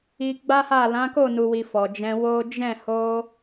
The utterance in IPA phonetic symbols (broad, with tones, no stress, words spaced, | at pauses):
i˧ɡ͡ba˦ha˦˨ lã˨˦ko˦˨nu˨wi˨ fɔ˨d͡ʒɛ̃˧wo˦ d͡ʒɛ̃˦˨ ho˧